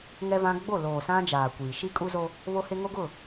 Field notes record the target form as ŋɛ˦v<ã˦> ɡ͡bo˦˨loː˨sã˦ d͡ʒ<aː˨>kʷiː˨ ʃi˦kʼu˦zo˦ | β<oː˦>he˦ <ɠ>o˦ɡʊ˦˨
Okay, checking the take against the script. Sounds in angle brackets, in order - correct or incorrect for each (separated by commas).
correct, correct, incorrect, incorrect